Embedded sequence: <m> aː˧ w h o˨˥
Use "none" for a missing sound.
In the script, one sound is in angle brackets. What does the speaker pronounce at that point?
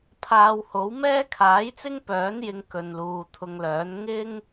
pʰ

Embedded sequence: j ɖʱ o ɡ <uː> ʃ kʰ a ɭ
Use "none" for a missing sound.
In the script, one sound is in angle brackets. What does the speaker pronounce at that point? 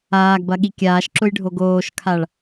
oː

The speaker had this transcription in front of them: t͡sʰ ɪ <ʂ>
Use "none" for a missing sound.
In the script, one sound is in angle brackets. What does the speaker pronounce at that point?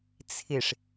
ʂ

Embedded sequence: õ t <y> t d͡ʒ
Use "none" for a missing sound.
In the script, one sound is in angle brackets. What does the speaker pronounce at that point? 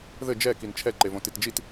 i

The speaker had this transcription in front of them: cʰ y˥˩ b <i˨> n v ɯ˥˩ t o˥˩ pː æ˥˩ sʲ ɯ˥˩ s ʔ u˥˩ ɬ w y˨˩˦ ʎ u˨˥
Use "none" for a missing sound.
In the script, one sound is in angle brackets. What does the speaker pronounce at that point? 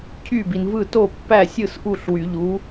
i˨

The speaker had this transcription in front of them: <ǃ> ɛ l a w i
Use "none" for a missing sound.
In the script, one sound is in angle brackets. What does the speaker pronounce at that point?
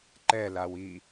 ǃ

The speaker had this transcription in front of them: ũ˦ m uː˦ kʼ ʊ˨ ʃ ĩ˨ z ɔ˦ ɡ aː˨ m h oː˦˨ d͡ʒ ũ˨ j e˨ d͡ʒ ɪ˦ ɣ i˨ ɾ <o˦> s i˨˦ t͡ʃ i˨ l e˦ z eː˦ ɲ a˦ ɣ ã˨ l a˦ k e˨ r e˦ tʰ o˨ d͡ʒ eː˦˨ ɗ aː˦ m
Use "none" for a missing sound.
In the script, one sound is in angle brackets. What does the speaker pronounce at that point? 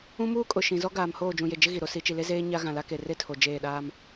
o˦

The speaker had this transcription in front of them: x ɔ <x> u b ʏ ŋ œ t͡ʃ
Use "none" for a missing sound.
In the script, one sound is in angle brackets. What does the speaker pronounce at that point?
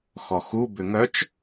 x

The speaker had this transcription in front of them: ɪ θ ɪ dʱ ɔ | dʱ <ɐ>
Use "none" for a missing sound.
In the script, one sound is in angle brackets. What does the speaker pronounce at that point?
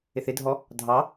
ɑ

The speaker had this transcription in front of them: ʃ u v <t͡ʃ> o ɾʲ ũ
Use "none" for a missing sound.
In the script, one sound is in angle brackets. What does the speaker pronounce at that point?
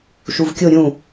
kʲ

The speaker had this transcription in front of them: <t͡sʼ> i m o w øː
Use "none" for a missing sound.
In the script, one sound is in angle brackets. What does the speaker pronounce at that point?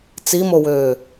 t͡s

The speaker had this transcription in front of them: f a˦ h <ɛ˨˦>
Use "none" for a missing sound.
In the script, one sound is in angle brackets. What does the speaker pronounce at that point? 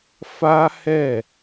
ɛ˦˨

